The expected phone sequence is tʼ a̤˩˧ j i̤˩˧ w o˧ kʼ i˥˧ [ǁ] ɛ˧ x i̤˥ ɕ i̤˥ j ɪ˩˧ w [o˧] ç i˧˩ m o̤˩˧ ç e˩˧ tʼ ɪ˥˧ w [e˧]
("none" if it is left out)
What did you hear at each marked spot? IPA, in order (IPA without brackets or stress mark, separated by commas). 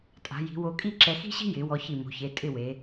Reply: ǁ, ɔ˧, e˩˧